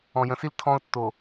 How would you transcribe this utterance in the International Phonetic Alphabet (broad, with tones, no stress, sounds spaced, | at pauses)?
ɔ̃˨ j ə̃˨ s i˦ l tʰ ɔ̃˦ ʊ̯ tː o˨